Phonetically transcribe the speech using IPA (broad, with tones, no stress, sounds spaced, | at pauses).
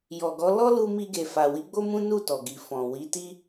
j ɔ˨ ɡ ɔ˨˦ l ɔ˦ l u˧ m i˧ ɡ e˨ f a˨ w i˨˦ ɡ͡b o˦ m ũ˦ n u˦˨ t ɔ˨ ɡ i˨ f ɔ̃˨ w i˨˦ t i˦